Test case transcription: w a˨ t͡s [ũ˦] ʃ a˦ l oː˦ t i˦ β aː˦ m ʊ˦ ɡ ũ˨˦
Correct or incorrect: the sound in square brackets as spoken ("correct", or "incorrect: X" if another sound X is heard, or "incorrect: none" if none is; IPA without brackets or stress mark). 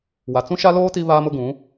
correct